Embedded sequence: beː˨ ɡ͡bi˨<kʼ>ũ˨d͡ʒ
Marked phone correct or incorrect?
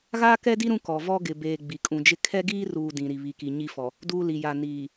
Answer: correct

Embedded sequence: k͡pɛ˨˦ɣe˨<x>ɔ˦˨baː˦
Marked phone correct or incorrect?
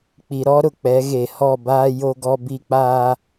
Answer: incorrect: h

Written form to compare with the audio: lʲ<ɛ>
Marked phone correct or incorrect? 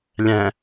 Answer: incorrect: ɛ̃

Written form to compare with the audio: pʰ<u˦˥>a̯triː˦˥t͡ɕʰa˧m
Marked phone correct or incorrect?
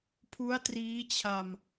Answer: correct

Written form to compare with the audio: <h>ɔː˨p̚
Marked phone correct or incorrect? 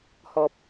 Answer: correct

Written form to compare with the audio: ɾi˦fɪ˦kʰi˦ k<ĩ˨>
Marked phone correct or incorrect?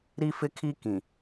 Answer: correct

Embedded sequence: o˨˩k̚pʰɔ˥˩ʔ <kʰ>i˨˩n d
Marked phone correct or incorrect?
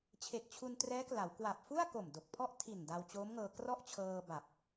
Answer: incorrect: tʰ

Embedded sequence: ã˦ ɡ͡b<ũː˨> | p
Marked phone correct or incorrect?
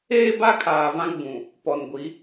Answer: incorrect: ũ˨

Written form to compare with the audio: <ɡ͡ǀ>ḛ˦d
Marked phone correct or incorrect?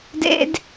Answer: incorrect: d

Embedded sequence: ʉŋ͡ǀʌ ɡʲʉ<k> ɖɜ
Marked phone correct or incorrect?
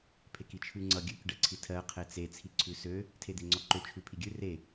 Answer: correct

